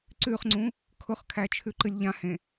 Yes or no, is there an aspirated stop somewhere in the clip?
yes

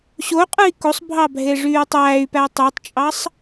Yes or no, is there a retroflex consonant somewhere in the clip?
yes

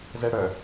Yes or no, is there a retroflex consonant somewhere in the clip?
yes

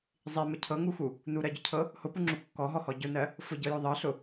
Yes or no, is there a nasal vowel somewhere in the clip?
no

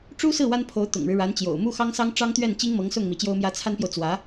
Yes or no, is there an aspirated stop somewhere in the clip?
yes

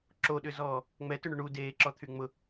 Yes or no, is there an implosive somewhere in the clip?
yes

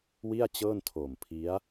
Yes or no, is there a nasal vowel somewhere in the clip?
no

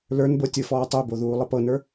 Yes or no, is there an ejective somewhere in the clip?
no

